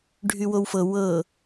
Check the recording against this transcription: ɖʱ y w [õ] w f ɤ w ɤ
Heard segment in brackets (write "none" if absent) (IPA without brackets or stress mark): o